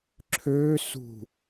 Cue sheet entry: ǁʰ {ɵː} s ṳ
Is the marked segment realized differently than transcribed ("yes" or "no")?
yes